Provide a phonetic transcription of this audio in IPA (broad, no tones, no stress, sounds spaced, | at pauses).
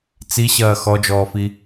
t͡s i ɕ ɐː x ɔ d͡ʒ ɔː f i